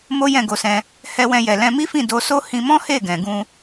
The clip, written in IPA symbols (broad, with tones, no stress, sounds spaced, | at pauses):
m o˦ j ɛ̃˦˨ ɡ o˧ s ɛ̃˧ | h ɛ˧ w ɛ̃˧ j ɛ˨ l ɛ̃˧ m i˦ f ĩ˦˨ d o˧ s o˦ h ĩ˧ m ɔ̃˦ h e˦˨ ɡ ɛ̃˨ ɡ ũ˧